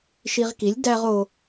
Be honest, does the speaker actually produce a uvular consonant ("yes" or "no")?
yes